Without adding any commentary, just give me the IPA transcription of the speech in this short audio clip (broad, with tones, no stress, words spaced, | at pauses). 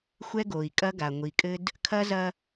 xʷɛ˦ɡo˨i̯kʼɐ˦ɡa˨ ŋʷi˨kʼɘ˦d | kʰɐ˦zɐ˦